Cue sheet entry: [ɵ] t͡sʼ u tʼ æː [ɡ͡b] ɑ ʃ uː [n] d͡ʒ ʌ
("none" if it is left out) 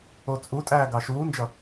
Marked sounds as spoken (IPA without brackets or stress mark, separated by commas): o, ɡ, n